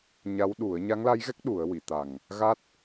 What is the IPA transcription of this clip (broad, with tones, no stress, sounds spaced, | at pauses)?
ɲ a˧˥ w ɗ u˨˩˦ ə̯ ɲ a˧˥ ŋ l a˧˥ j ɣ ɛ˦˥ k̚ ɗ u˨˩˦ ə̯ w i˨˩˨ t̪ a˨˩ ŋ | ɣ a˦˥ t̚